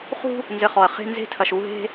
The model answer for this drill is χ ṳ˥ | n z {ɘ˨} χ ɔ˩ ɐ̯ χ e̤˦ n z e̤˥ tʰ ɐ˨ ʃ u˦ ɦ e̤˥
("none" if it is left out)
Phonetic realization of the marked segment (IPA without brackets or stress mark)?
ɘ˨